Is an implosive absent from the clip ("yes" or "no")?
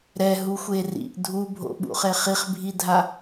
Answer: no